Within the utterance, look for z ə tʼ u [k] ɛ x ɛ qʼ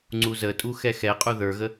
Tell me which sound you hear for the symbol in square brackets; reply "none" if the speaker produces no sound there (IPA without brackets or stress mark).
x